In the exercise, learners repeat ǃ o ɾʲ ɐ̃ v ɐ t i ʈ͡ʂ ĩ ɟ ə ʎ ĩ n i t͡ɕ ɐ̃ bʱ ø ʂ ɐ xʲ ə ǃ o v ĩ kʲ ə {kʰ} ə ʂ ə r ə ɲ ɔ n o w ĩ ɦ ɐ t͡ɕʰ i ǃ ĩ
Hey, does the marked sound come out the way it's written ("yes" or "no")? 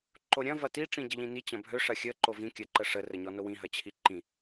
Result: no